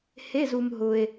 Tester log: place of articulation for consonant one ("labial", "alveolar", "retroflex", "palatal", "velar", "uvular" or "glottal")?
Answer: glottal